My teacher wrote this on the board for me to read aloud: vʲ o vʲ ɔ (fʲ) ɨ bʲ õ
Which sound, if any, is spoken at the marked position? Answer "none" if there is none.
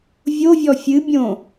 fʲ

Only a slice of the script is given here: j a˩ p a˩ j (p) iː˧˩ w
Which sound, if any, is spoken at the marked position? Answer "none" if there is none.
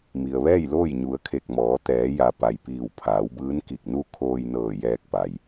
p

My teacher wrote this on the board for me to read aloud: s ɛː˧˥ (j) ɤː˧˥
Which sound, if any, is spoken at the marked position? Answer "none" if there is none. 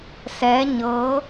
ɲ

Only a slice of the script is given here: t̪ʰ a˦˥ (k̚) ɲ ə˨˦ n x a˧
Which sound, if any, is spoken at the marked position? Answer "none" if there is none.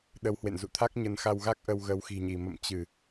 k̚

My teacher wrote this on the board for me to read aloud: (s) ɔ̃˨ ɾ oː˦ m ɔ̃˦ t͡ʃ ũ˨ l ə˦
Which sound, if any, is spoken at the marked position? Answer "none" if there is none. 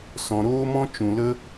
s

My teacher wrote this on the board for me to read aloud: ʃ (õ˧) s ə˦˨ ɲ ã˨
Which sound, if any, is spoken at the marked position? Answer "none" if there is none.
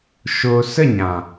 o˧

